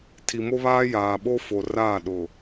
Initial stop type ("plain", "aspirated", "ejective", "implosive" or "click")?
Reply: aspirated